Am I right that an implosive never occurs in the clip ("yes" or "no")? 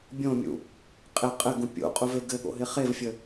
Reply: no